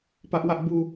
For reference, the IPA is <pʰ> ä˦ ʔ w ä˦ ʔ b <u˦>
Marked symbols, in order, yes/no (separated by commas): no, yes